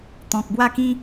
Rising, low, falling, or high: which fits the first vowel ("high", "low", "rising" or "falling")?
low